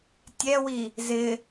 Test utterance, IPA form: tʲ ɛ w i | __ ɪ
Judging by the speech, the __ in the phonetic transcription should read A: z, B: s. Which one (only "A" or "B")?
A